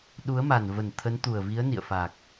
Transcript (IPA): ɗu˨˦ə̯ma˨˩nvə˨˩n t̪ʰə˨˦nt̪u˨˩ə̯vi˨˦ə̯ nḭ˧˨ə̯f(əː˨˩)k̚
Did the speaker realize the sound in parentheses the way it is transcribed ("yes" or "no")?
no